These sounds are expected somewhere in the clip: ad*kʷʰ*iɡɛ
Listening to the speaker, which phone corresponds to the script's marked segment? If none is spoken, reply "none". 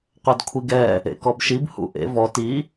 kʷʰ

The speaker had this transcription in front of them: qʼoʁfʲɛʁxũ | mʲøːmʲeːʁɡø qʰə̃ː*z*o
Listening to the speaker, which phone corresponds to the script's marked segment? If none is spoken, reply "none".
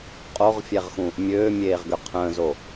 z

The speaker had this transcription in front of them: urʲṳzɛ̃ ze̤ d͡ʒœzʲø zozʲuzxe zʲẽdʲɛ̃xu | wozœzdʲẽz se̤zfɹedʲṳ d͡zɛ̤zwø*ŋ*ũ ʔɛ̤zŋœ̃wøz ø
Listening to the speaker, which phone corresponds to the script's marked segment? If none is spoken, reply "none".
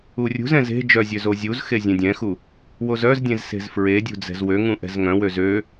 ŋ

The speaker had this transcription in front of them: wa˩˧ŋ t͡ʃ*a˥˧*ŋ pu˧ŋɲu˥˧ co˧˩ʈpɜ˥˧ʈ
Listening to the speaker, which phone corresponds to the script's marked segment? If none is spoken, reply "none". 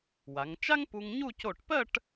a˥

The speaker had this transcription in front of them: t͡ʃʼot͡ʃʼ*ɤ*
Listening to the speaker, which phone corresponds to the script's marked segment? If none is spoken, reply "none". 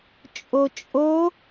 o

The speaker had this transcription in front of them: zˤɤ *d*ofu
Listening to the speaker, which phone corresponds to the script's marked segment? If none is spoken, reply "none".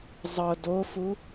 d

